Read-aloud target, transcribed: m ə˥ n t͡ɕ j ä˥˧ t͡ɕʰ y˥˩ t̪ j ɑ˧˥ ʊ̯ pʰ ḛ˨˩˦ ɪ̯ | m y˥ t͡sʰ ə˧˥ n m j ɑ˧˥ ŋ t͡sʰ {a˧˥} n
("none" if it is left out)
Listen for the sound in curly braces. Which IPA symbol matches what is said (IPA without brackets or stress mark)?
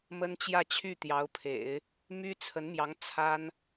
a˥